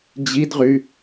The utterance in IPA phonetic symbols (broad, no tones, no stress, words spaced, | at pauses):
d͡ʑidʁy